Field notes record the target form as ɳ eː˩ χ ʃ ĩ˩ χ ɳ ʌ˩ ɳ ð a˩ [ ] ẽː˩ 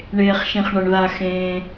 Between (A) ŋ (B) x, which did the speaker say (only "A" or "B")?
B